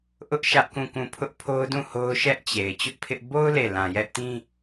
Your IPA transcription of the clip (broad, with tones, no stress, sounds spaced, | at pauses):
ʔ ʊ˦ ʔ ʃ ä˦ ʔ k ũ˦˨ k ũ˦˨ pʰ ʊ˦ ʔ pʰ o˦ ʊ̯ d ũ˦˨ h o˦ ʊ̯ ʃ ɛ˦ ʔ t͡ɕ e˨ ɪ̯ t͡ɕ ʊ˦ ʔ pʰ ɪ˦ ʔ b o˦ ʊ̯ l e˦˨ l ã˨ j ɛ˦ ʔ t ĩ˦